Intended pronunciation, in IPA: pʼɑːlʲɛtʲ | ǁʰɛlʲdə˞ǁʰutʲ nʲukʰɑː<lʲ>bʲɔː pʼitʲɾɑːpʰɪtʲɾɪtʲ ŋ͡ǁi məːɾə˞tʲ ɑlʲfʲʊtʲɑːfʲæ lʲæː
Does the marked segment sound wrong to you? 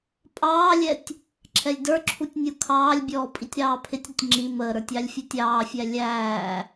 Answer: no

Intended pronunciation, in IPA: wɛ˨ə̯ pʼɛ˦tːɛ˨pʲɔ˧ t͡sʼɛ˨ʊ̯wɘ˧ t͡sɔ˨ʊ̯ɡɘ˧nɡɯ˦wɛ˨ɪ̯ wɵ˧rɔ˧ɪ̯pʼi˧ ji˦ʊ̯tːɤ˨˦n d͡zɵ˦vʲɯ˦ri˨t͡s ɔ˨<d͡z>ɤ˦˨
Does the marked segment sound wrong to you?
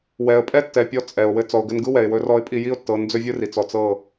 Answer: yes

